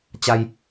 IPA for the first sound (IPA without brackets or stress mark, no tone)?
t͡ɕ